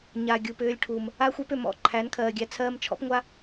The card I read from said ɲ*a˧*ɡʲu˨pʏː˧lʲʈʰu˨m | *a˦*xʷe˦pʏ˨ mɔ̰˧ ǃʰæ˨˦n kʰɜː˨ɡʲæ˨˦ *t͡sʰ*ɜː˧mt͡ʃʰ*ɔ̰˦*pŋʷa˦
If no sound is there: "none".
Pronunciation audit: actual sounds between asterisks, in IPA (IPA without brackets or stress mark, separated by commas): a˨, a˦, t͡sʰ, ɔ̰˦